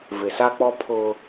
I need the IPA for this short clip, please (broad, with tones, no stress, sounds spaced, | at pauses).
v ɪ˨ s a˦ k͡p ɔ˦ pʰ ʊ˦